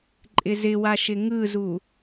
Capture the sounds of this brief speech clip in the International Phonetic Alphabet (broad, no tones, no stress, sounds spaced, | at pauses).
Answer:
ǃʼ ɪ z ɪ w a ʃ ɪ ŋ ɯ z u